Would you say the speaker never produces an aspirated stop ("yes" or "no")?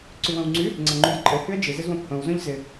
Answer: yes